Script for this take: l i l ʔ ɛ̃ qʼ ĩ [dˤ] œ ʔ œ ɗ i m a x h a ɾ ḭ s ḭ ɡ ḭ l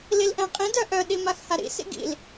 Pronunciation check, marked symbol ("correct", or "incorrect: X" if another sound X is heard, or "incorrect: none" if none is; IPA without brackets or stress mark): incorrect: d